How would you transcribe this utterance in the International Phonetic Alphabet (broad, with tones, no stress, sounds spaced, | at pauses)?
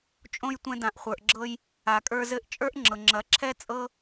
t͡ʃʼ õ˧ j tʷ ɛ̃˧ d ã˨ ʔ χʷ ə˞˨ ʔ ɡ͡ǁ ɤ˧ j | a˨ kʼ ə˞˧ z ɘ˧ ʔ t͡ʃʼ ə˞˦ ʔ ŋ͡ǁ ɤ˨ ŋ͡ǁ ɐ˨˦ ǁʰ ɛ˦ t͡sʼ ɤ˦